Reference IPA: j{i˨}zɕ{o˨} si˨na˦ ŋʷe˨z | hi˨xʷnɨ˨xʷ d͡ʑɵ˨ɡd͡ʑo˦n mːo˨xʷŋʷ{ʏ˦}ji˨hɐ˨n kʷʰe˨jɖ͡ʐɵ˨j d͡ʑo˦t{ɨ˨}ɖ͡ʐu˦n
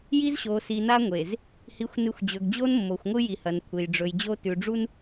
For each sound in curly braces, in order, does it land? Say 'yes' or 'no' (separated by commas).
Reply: no, yes, no, no